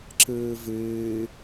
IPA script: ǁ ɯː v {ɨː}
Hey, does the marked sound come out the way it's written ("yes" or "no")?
yes